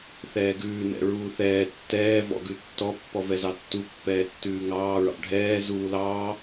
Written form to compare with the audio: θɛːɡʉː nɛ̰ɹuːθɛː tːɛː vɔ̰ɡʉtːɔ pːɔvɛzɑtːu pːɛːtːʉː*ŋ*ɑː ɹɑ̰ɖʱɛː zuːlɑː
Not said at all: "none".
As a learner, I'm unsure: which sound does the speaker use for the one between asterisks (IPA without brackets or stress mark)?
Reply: ŋ